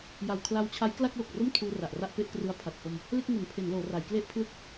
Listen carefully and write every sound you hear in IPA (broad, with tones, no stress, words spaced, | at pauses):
ja˨˩wkʰla˧wt͡ɕʰa˦˥j kla˥˩k̚lo˨˩k̚ro˥˩m tʰuː˧ra˨˩ʔra˥˩ʔpe˥˩ʔ krɯ˧a̯pʰa˨˩t̚ho˧m | le˥˩k̚ŋo˩˦npʰe˩˦nloː˩˦ ra˩˦jkle˥˩ʔpʰlɯ˥˩k̚